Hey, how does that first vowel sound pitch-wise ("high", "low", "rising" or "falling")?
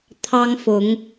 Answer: high